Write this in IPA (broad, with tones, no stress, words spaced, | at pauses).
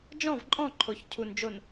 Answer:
d͡ʒɔ̃˦˨vǃʼɔ̃˦˨ ǃʰo˨çcʰu˨nd͡ʒo˨n